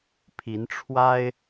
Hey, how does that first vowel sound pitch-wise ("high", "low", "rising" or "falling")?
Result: rising